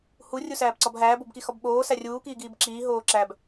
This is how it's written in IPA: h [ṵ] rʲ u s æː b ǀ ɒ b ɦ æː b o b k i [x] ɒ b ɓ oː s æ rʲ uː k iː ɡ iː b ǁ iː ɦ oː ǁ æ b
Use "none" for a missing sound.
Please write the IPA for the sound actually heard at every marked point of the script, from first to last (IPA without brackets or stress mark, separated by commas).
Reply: u, x